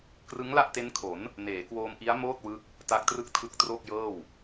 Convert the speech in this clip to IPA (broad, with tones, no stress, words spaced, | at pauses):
krɯ˦˥ŋla˥˩ʔte˦˥nkʰo˩˦n | neː˩˦kwoː˧m ʔi˦˥a̯moː˥˩t̚wɯ˦˥k̚ | ta˦˥k̚trɯ˥˩k̚ tʰɯ˦˥k̚ tro˥˩k̚jɤː˥˩w